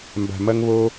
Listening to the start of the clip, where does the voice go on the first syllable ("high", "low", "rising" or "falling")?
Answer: low